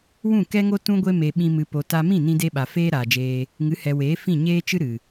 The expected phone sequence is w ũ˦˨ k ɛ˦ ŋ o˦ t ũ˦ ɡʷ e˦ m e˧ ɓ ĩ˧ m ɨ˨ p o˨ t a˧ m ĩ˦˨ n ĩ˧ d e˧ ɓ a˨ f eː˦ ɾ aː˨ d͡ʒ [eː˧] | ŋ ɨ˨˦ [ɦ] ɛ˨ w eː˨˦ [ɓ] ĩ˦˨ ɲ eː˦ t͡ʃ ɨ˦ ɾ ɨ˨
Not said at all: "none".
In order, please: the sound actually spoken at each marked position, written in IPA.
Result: eː˧, h, f

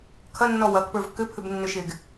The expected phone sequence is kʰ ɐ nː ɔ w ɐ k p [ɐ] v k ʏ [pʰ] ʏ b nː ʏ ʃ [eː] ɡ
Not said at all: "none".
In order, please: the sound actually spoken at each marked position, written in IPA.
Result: ə˞, pʰ, e

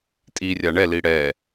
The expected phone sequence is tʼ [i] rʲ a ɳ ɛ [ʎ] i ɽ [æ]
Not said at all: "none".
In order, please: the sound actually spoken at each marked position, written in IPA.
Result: i, l, ɛ

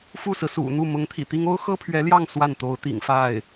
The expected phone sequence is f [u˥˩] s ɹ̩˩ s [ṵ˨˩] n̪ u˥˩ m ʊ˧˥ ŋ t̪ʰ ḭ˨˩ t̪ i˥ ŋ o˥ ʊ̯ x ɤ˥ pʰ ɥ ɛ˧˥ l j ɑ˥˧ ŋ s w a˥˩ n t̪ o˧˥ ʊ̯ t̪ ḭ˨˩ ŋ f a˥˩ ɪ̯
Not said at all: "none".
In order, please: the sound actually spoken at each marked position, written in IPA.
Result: u˥˩, ṵ˨˩

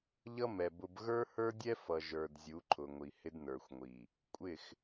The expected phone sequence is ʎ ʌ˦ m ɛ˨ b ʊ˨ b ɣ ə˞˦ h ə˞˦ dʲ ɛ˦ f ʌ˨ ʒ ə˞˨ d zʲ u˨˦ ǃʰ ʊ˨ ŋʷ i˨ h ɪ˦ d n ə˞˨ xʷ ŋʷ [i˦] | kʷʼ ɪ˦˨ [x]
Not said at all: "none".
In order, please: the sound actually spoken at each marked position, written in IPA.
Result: i˨, x

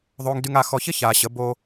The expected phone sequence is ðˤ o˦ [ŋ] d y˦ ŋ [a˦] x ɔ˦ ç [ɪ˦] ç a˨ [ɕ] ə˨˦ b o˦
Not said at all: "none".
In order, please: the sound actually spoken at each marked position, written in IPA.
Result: ŋ, a˦, ɪ˦, ɕ

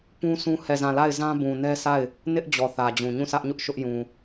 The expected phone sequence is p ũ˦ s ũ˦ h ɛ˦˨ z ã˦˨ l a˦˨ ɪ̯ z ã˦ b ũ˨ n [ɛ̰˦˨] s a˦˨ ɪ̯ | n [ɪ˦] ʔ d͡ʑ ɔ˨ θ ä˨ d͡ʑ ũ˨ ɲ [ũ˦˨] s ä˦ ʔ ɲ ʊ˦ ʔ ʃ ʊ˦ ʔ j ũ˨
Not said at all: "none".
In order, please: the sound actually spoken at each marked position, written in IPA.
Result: ɛ˦, ɪ˦, ũ˦˨

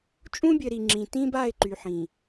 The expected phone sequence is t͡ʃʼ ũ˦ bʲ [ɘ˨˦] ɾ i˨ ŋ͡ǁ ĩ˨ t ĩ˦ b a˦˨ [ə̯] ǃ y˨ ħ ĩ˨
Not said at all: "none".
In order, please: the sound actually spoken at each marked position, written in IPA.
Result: ɘ˨, ɪ̯

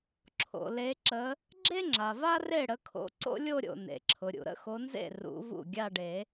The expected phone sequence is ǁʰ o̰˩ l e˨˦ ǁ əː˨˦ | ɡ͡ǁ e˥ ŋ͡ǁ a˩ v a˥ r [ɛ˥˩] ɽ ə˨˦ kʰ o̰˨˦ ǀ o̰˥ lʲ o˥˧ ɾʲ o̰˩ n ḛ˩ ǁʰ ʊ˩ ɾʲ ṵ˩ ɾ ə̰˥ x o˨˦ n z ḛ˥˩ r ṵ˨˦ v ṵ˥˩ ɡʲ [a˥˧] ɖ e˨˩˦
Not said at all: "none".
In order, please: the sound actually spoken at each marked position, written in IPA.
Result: e˥˩, a˥˧

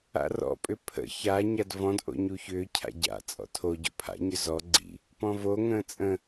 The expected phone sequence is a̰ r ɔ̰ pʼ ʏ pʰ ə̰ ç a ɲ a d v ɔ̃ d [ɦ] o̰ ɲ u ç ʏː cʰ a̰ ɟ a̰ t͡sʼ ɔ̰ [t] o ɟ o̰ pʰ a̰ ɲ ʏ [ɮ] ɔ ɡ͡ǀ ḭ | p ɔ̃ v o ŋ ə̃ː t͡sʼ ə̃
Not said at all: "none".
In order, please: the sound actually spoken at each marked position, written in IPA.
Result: ʔ, tʰ, z

